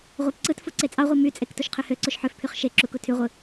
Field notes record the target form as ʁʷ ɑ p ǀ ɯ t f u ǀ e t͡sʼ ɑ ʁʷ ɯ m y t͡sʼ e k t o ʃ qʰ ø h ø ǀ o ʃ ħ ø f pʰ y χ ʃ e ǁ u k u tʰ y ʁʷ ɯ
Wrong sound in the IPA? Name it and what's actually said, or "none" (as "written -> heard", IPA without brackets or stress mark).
none